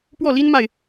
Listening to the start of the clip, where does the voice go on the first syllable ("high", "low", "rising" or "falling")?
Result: falling